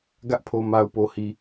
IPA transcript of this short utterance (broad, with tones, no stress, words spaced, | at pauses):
ɡä˦ʔpʰo˨ ma˨ʊ̯po˨hi˨